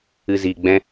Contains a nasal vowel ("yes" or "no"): yes